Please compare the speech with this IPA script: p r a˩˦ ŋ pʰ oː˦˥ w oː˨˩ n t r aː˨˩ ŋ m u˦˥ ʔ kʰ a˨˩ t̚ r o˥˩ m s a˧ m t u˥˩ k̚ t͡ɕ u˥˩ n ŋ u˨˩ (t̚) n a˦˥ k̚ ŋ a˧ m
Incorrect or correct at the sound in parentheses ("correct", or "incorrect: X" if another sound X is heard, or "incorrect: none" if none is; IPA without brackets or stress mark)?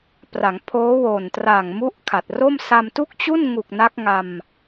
incorrect: k̚